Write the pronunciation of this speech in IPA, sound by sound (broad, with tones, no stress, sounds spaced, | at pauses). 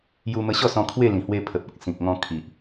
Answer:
j u˧ m ə˧ ɕ ɔ˥˧ s ɔ̃˧ kʰ w e˥˧ l ĩ˨˩ h w e˧ pʰ ə˨ p̚ ɔ˨ k̚ s ĩ˨ k̚ ŋ ɔ̃˧ kʰ i˨ ʔ